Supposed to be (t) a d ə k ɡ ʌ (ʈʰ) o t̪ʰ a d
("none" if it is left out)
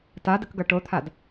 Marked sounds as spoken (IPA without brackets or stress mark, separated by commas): t, ʈ